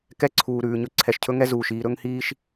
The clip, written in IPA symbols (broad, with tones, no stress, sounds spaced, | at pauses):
k ɛ˦ ǀʰ uː˨ ɾ ʉː˨ ɲ ɵ˦ ǀʰ ɛ˨ ʃ cʰ ɵ˦ ŋ ɛ˦ z uː˨ ʃ iː˦ ɾ ɵ˦ ŋ h iː˦ ʃ